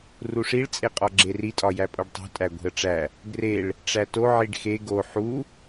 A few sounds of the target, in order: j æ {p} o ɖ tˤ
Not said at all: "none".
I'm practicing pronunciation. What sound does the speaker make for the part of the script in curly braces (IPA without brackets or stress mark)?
pʼ